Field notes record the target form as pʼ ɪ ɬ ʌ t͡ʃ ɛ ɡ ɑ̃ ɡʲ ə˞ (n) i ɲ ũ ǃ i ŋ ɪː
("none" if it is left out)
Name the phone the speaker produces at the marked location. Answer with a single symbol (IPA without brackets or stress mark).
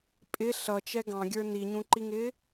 n